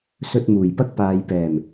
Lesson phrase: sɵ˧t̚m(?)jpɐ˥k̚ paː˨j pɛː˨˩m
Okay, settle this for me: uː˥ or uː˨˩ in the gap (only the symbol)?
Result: uː˨˩